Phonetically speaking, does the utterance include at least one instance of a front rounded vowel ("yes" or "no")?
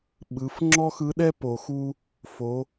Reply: no